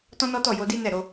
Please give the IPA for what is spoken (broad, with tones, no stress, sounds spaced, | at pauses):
t ɔ̃˦ n ɔ˦ t ɔ˦˨ j o˧ d i˦ n ɛ˦˨ ɾ o˧